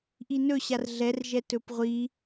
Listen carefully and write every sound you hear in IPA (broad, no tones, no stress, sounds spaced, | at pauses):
ʔ i n ɵ ɕ a r ɮ ɛ r ʒ ɛ t ɵ p ʁʷ i